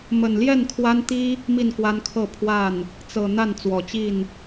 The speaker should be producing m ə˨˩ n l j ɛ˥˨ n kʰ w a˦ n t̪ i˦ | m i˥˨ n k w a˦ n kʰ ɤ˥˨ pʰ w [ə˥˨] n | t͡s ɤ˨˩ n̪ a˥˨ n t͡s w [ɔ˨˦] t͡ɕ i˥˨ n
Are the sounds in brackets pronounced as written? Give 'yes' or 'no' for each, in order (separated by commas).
no, no